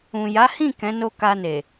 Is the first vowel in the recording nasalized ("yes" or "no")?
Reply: yes